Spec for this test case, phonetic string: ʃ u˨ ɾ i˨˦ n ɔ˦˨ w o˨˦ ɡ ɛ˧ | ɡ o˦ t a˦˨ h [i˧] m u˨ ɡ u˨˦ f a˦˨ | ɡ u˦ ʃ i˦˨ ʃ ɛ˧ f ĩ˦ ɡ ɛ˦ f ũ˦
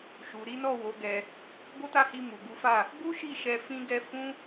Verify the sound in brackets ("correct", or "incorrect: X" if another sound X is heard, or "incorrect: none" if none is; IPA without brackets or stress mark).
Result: correct